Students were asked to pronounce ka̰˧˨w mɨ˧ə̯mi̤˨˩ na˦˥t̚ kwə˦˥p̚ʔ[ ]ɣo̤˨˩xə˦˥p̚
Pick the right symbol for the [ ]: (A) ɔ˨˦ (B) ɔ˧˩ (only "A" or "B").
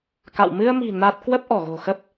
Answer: B